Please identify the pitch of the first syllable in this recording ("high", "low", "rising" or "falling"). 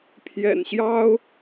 low